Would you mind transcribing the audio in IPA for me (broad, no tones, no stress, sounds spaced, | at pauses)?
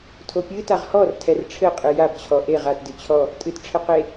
tʰ o pʲ ɨ t a ʁ h ɔ r tʰ ɛ r ʈ͡ʂʰ ɘ qʼ ɨ j a b t͡ɕʰ ɔ ʔ e ʁ a t d ɨ t͡ɕʰ ɔ | tʼ ɨ t ʈ͡ʂʰ ɘ q e